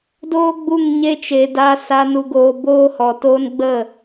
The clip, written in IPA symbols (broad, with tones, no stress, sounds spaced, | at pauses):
d oː˦ ɡ͡b u˦˨ ŋ ɲ e˦ t͡ʃ e˧ d a˧ s a˧ n u˧ ɡ oː˧ b oː˦ h ɔ˧ t oː˦ n ɡ͡b ə˦˨